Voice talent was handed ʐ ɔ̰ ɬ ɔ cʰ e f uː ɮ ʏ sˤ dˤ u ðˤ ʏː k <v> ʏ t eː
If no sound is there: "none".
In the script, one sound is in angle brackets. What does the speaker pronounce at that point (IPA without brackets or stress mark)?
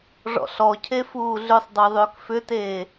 f